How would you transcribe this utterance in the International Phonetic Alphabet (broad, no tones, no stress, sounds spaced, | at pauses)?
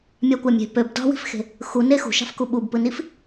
mʲ ɑ kʷ ɑ mʲ e̤ p ø b d ɑ̤ w i̤ f x e̤ | x u n e x ṳ ʃ ɑ̤ f k u ɓ u b p ɯ n i f